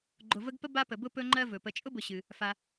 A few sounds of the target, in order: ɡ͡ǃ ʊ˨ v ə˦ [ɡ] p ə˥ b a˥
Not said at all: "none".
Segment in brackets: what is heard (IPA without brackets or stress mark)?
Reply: ɡ